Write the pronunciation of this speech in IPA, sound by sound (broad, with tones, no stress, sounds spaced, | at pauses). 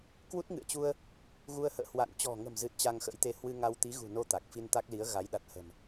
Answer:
k w u˦˥ t̚ ŋ ɨ̰˧˨ ə̯ t͡ɕ u˧ ə̯ | ɣ u˧ ə̯ h ə̰ː˧˨ h w a̰˧˨ n t͡ɕ ɔ̤˨˩ ŋ ə̤˨˩ m z ɨ˨˩ t̚ t͡ɕ a˧ ŋ x ə̰˧˥ j t̪ e˧ h w ɨ˧ ŋ a˧ w t̪ i˨˦ ɣ ṳ˨˩ n o˧ t̪ a˨˩ k̚ f i˧ n t̪ a˦˥ k̚ l i˨˦ ə̯ ɣ a˨˦ j ɗ a˨˩ t̚ h ə̤˨˩ m